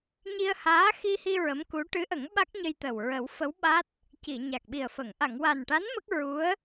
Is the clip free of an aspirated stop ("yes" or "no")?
yes